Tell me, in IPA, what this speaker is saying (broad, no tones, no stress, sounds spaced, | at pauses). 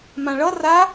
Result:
m ã ɭ ʌ r a